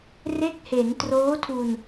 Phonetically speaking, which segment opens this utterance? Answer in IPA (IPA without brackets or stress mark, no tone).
r